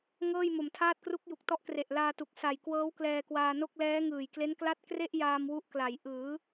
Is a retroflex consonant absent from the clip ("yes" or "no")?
yes